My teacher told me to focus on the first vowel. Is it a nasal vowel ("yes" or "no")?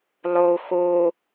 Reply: no